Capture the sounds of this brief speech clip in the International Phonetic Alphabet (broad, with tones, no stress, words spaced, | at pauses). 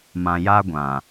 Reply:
mã˨ja˦ɡʷã˨